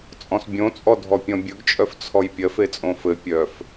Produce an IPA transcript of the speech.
t͡sʼɔ̃sbʲõt͡sʼɔ dʱɔpʲɔ̃bʲɵɡt͡ʃʼœf t͡sʰɔjpʲɜf et͡sʼõfɘ pʲœf

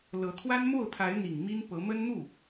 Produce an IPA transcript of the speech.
lɤ˧˥t̪ʰwa˥n mo˥˩ʊ̯t̪ʰa˧˥ɪ̯n̪i˨˩ŋ mi˥n pɤ˧˥mə˥nn̪u˥˩

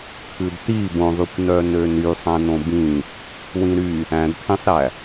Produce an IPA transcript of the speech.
kʰʉdti bõðˤykʷ nœnøny sˤæ̃nõbĩ | wĩɾy | æ̃dtʰĩsˤɾæ

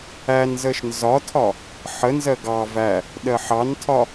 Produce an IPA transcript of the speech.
ænzəʃ nzɒtʰɒ | ħənzɜ ɡɑ væ | ɗɜħɑntʰɒ

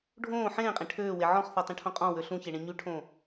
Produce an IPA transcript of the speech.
ɖʱõː ħẽːqʼẽ ʈʰøːwe ʕɔ̃χθɔtˤĩʈʰõ qʼɔ̃wø ɬũçeɳẽ ɲyʈʰõː

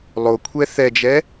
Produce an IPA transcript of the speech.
lˠokʷʰɛ θɛd͡ʒɛ

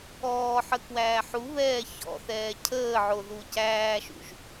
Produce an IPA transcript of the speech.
ɔːħə kwæːħuβɛː çɔ̰θɛː cʰəːʕo ðucæːʃṵʒ

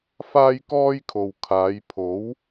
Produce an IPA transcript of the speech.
faː˥jkɔː˥jkʰo˨w kʰaː˨˧jpʰo˨˥w

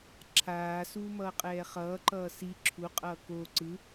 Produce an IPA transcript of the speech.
ǁʰaː suːmʌːqʼɛːχʌː ǃʌːsi ǁʰu qʼʌːko ǀɯ

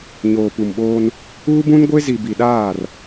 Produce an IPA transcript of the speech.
ɲoː˨pu˨mɓoː˦n | uː˦bũ˦nɡʷe˦ zi˨bi˨ɗaː˦˨r

